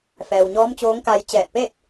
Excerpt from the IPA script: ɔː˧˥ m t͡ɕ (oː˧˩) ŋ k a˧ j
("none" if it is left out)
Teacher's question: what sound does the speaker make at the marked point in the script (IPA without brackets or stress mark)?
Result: oː˧˥